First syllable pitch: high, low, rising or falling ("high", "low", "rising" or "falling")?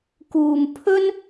low